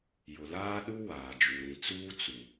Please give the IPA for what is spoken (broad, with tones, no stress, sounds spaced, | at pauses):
j ʊ˨ l aː˦ ɗ u˦ w aː˨ d͡ʒ u˨ ɾ ĩ˨ t͡s uː˦ t͡s u˨